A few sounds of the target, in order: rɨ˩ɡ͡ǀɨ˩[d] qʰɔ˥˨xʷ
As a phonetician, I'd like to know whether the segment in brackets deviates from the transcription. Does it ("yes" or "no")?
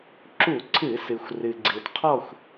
no